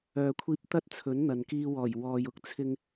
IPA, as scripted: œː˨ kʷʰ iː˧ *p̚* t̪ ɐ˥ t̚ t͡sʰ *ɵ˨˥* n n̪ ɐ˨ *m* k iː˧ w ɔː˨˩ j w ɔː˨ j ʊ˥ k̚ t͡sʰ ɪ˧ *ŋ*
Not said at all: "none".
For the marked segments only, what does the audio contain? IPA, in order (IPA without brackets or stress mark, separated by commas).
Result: p̚, ɵ˨˥, n, ŋ